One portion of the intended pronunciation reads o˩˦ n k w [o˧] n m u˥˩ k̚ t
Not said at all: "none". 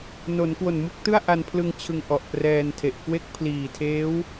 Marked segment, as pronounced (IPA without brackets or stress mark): o˨˩